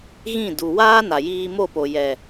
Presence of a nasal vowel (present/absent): present